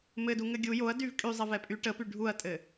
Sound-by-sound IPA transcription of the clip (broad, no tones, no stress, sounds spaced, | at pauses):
m ɘ d u ŋ ɘ ɡʲ u j o ɐ̯ d y v kʼ y zˤ ɛ v ɛ pʼ y ʈ ə p y ɖʱ u ɐ̯ tʼ ɘ